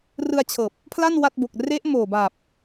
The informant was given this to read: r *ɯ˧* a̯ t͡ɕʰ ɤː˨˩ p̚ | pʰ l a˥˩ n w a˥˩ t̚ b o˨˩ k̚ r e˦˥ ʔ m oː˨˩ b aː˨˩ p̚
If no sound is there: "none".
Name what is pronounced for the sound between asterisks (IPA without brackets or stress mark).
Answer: ɯ˧